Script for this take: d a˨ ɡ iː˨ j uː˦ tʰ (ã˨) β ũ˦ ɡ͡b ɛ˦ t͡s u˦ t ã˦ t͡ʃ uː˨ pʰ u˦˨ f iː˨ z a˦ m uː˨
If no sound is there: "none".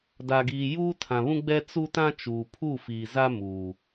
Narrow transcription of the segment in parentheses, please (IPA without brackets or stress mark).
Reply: ã˨